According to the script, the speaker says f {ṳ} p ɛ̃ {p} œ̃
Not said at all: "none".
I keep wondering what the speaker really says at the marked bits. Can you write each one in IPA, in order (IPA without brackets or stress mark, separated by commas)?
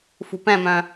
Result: ṳ, m